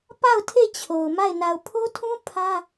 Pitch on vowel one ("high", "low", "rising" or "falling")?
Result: falling